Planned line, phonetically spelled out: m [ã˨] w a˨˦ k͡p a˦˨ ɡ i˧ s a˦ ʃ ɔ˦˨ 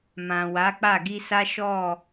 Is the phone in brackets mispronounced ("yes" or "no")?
no